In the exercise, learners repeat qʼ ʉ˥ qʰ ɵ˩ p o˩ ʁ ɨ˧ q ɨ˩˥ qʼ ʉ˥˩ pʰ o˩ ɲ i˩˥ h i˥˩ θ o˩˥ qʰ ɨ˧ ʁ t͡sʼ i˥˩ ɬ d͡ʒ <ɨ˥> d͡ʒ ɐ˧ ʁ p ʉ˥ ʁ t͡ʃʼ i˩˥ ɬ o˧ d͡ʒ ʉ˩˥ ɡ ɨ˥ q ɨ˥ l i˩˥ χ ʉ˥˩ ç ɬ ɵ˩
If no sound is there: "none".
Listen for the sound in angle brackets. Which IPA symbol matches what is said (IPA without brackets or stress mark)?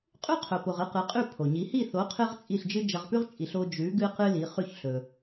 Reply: ɨ˥